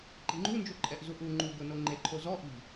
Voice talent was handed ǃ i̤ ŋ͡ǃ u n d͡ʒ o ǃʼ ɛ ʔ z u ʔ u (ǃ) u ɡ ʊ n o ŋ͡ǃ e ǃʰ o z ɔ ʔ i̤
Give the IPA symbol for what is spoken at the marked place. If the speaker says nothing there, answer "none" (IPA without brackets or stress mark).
ŋ͡ǃ